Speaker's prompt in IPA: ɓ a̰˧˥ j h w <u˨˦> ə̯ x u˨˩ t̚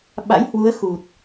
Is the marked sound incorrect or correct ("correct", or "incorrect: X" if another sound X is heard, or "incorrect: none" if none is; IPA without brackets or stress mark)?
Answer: correct